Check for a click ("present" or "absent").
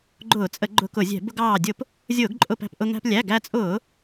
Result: present